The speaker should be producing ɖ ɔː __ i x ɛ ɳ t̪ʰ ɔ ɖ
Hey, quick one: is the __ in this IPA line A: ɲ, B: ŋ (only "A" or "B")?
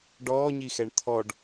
A